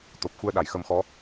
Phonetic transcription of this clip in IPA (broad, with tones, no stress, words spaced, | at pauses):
t̪o˨˩p̚xu˧ə̯ ɗa˨˩˨jxə˧mxɔ˧˥